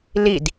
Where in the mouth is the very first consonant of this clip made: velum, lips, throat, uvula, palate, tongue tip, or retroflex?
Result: tongue tip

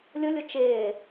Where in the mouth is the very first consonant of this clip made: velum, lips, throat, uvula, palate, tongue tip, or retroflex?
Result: tongue tip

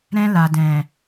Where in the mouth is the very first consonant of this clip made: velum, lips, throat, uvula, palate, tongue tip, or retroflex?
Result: tongue tip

